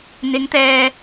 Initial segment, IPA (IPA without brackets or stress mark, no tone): n̪